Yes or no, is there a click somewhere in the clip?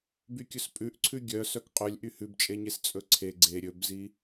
yes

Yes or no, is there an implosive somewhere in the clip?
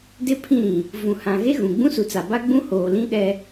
yes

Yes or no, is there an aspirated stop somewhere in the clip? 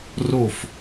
no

